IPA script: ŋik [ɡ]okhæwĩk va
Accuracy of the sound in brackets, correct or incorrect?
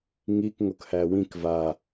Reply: incorrect